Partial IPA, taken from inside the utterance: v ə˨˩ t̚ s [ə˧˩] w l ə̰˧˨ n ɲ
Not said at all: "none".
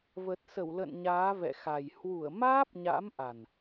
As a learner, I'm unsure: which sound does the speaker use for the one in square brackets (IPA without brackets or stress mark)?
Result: ə˧˩